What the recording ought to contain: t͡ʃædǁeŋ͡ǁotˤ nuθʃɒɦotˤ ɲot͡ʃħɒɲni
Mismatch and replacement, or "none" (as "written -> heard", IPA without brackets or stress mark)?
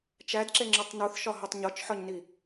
none